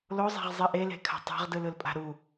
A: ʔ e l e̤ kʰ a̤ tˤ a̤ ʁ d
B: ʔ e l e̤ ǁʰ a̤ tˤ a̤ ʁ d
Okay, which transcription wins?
A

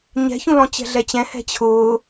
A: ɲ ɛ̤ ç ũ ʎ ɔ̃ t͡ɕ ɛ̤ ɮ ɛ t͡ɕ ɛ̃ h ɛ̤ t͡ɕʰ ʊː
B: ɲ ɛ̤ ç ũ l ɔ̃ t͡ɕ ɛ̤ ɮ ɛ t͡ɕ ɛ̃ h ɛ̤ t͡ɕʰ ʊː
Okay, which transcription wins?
B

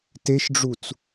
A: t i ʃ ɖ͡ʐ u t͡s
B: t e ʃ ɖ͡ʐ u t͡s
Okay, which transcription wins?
B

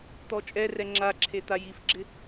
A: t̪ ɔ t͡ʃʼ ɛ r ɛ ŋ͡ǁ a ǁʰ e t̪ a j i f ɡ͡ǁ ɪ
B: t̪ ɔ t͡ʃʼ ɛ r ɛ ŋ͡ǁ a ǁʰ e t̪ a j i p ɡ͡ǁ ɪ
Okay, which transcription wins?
A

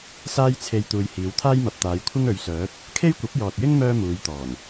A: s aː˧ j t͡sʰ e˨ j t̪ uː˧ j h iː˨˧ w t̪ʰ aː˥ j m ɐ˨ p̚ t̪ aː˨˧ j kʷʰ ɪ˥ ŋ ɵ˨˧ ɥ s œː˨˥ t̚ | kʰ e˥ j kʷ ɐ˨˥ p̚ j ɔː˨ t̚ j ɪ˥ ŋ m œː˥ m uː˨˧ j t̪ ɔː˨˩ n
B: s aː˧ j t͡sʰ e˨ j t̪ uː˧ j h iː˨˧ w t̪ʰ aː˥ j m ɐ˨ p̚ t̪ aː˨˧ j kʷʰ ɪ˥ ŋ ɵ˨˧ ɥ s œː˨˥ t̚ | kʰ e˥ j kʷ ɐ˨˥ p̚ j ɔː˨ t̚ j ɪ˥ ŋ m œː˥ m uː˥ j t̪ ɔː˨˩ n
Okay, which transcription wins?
A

